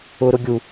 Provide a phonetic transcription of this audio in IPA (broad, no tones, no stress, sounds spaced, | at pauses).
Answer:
ʊ ɾ ʊ ɡʲ u